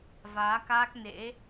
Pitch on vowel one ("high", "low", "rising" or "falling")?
rising